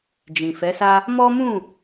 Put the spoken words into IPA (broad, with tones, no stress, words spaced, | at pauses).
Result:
d͡ʒĩ˨fɛ˨˦sa˦ | mɔ˦mũ˦˨